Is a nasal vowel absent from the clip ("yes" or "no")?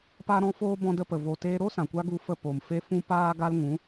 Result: no